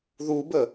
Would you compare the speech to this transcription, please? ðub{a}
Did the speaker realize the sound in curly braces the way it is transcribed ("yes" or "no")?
no